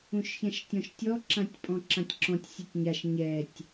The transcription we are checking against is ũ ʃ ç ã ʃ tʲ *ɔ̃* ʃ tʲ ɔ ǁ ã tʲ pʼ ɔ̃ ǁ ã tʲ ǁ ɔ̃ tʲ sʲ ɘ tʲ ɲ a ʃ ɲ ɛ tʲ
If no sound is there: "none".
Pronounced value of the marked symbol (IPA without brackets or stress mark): ɔ̃